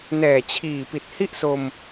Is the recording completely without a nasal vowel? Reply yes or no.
yes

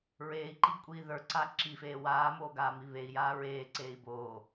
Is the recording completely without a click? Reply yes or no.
no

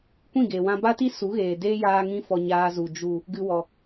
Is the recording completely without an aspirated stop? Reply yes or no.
yes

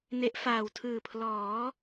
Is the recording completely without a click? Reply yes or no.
yes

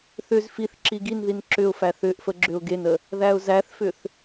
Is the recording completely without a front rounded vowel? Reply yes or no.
no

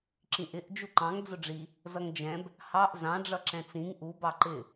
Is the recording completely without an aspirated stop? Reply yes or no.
yes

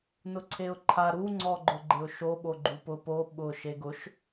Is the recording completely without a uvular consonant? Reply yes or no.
yes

